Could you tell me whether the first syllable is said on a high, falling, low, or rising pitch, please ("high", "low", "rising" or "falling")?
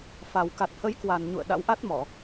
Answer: low